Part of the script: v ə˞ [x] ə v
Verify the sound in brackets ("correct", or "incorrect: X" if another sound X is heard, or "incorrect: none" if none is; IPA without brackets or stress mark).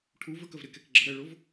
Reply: incorrect: k